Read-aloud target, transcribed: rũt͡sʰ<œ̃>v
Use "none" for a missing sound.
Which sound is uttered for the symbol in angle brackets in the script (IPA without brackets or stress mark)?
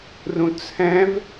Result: ɛ̃